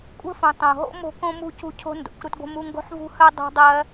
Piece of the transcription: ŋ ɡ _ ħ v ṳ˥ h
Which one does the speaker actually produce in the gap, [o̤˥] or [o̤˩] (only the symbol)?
o̤˥